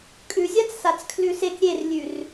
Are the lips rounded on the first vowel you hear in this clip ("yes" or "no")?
yes